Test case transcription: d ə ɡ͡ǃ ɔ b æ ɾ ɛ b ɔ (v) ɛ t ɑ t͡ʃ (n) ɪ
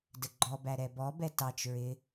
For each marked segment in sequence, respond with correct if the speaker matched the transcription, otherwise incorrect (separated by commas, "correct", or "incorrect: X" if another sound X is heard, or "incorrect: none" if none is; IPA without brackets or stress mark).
incorrect: b, incorrect: ɹ